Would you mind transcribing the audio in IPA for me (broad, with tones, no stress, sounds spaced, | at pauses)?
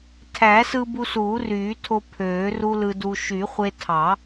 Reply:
tʰ æ˨˩˦ s ɯ˧ b u˧ s uː˨˩˦ r yː˨˩˦ tʰ o˧ pʰ øː˨˩˦ r u˧ l ɯ˧ d u˧ ʃ y˨˩˦ χʷ e˧ tʰ ɑ˨˩˦